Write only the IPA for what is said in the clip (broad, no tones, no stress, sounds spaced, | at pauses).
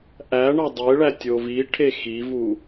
ʔ æ ɳ ɒ dˤ e ɭ æ tʲ o v i ʈʰ e x i v u